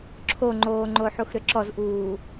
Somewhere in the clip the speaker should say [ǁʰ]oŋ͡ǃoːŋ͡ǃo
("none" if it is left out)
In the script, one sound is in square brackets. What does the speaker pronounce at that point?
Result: ǁʰ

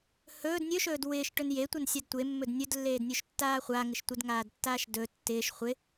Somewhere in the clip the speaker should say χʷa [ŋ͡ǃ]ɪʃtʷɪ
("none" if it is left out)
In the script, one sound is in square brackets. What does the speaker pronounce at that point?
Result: ŋ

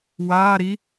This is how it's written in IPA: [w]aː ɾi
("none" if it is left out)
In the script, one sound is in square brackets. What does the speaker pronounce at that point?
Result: w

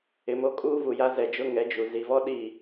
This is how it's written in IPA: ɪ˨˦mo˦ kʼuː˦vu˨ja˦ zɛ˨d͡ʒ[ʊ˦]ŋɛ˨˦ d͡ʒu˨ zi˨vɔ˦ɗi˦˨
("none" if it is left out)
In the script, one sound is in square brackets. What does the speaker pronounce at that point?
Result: ʊ˦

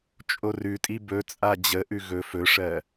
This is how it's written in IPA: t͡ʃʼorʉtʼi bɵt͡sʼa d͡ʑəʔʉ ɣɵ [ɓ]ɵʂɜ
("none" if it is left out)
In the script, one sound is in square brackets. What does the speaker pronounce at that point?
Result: f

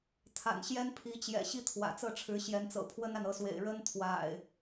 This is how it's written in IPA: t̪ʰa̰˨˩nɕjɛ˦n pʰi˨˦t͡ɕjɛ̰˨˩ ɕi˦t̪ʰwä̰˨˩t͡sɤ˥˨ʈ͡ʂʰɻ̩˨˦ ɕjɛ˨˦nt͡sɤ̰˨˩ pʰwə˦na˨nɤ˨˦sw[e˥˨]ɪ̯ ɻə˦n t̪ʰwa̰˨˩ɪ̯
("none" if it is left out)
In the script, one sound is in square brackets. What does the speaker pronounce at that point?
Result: ḛ˨˩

